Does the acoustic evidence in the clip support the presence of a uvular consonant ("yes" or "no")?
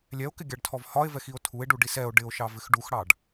no